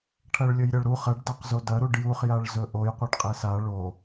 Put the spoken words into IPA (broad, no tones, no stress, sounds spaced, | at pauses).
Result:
ʈʰ ɐ ɭ lʲ ɵ j ɾʲ ɐ ɭ ɾ u χ ɐ ɖ d a q z o d ɐ ɾ u ɖ j u χ j a ɭ z ɵ ʔ o j qʷ ɐ ɖ qʼ e s a ɭ o